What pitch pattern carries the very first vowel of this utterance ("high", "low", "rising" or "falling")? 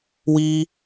high